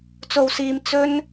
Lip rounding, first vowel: rounded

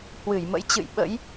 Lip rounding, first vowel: unrounded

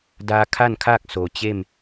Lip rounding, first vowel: unrounded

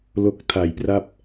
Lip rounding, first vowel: rounded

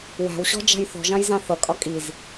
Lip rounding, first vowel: unrounded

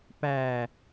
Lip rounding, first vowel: unrounded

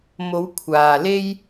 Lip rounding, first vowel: rounded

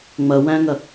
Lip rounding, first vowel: unrounded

